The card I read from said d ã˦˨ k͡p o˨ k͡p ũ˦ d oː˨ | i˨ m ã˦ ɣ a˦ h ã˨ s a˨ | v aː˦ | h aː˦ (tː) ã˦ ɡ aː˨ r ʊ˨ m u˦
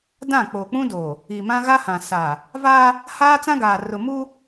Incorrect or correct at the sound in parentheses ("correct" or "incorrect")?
incorrect